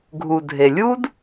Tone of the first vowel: low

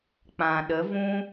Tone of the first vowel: low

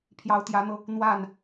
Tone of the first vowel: rising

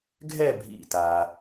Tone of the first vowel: falling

